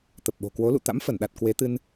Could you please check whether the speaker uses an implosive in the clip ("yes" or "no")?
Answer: yes